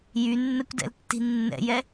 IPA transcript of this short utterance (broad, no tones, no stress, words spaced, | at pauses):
jynːɛkʷdɛ̰ltːi̤ nːɛ̰jɛ